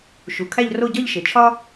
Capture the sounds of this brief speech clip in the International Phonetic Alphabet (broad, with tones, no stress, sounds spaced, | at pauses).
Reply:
ʃ u˩ kʰ æ˥˧ ʎ r o˥˧ ɟ ɒ˥˧ ʎ ʃ e˩ t͡ʃʰ ɒ˥